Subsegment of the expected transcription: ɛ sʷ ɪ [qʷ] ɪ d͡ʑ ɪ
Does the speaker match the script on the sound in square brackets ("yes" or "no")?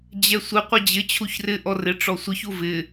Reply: yes